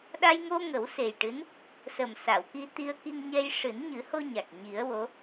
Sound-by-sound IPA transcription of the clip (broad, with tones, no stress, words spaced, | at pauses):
ɗa˧jŋo˧ ŋə˨˩˦wse˨˩jʈɨ˧˥n | sə˨˩msa˨˩˨wki˧ t̪i˧ə̯ki˧ŋɲɛ˧j ʂɨ˨˩˦nɲɨ˨˩˦ho˧ɲa˨˩k̚ ɲi˨˩˦ə̯wo˧˥